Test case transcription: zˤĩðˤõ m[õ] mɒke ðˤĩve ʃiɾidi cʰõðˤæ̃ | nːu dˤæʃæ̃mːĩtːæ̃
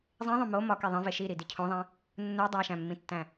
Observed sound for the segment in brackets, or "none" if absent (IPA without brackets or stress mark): o